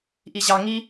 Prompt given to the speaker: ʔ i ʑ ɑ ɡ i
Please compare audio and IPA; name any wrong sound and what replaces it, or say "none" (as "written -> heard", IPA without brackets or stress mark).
ɡ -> ŋ